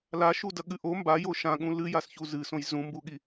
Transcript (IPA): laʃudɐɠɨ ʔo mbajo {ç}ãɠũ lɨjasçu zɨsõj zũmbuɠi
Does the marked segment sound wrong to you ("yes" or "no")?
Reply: yes